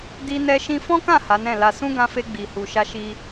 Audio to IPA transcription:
d i˧ n ɛ˧ ʃ ĩ˧ f ɔ̃˦ k ã˦˨ h a˨˦ n ɛ̃˦˨ l a˧ s ũ˦ ɡ ã˧ f e˧ ɡ͡b i˨ h u˨ ʃ a˧ ʃ i˧

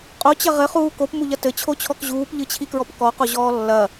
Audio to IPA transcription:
qʼ o t͡ɕ ɐ ʁ ɘ χ uː k o p m u ʎ ɐ t ɘ t͡ɕʰ o t͡ɕʰ ɔ k ʑ uː p ʎ ɨ t͡ɕʰ i k ɹ ɔ p k ɔ q o ʑ ɔː lː ɐ

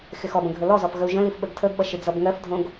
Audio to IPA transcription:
x ɪ x ɔ b ə̃ ɡʱ ə l ɔ z ɔ f ɣ ə u̯ ʒ ə̃ l i f ɓ ə ɡ tʰ ə ɡ ɓ ʌ ʃ ɪ d͡z ʌ b ŋ ɜ f dʱ õ ɡ

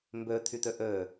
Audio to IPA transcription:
m b ø t̪ʰ y t̪ ø ʔ øː

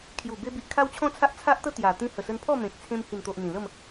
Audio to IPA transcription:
kʰ j u˨˩ b e˧ b i˨ ʔ kʰ a˦ w t͡ɕʰ ɔ̃˦ t͡sʰ a˦ ʔ t͡sʰ a˦ ʔ t̪ ə˦ t̪ j a˨˩ t̪ ĩ˧ h ə˨˩ s ə˧ n pʰ ɔ˥˧ m ẽ˨ k̚ t͡sʰ ẽ˧ m h i˨˩ n t̪ o˨ ʔ n̪ ĩ˨˩ l ə˥˧ m

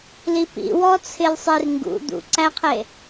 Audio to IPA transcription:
l i p ḭ w ɔ t͡sʰ ɪ l sˤ i r ŋ ɡ ṵ d̪ ṵ ǀ æ qʰ e

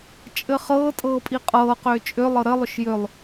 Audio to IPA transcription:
t͡ʃʼ ɘ χ ɤː tʼ ɤː pʼ i qʼ ɤː q ʏː t͡ʃʼ ʏ lˠ ɤ ɾ ɘ lˠ ʏ ʃ j ʏ lˠ

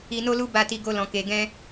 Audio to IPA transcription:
i˧ n o˦ l u˦ b a˦ t i˦ ɡ o˦ l ɔ̃˧ k e˧ ɡ ɛ̃˦

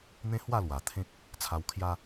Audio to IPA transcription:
n̪ ẽ˦ h w a˥˧ l w a˨˩ t̪ʰ ẽ˦ k̚ | t͡sʰ a˧ w kʰ j a˦

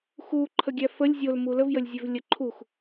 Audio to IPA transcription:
x u ǃʰ ə ɡʲ æ f ə lʲ zʲ o l m u l ə v j ə lʲ zʲ ø v lʲ ə ǃʰ u x

